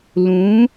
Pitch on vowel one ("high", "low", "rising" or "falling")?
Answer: rising